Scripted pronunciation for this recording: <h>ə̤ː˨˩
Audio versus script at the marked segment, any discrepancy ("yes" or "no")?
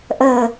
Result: yes